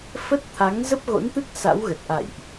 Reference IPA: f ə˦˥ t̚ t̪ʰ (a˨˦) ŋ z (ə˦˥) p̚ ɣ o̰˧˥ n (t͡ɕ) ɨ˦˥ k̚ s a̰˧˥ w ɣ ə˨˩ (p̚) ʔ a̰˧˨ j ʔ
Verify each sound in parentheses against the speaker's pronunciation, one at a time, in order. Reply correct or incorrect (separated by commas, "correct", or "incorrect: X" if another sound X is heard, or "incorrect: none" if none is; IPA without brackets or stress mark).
correct, correct, incorrect: t̪, incorrect: t̚